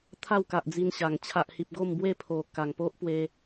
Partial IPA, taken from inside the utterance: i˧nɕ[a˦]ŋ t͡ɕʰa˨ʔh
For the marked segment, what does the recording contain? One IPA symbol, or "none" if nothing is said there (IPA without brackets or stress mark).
a˨˩